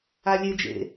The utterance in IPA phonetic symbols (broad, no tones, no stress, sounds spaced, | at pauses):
a lʲ e d͡ʒ ḛ